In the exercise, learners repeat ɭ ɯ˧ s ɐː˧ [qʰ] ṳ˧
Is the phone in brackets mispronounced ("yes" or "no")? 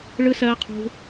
no